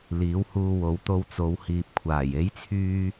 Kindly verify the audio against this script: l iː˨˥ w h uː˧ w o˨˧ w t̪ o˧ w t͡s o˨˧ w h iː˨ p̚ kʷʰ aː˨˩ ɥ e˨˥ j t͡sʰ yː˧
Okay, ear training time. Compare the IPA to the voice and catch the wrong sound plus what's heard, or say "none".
ɥ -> j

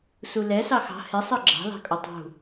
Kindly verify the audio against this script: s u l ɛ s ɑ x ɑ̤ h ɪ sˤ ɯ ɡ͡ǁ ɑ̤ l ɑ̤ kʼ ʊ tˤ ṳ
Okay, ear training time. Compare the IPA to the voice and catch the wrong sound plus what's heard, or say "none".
none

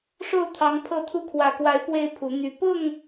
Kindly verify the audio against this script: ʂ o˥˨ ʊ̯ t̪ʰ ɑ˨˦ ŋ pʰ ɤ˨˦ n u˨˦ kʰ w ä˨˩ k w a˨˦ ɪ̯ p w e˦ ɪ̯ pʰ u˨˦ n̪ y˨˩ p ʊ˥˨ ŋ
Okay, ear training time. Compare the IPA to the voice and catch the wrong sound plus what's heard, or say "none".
n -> t̪ʰ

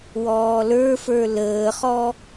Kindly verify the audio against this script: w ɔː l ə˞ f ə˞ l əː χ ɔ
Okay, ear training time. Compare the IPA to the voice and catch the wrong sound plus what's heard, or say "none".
none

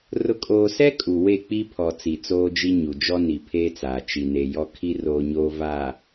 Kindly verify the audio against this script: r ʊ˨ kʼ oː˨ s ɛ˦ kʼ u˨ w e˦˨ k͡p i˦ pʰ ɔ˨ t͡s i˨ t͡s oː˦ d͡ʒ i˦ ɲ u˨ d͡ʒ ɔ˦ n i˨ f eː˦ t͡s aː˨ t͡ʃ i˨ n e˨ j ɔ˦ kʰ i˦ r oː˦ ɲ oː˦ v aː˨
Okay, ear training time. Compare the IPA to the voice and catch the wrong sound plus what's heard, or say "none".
f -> pʰ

